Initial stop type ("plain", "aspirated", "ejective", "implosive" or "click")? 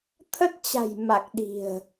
aspirated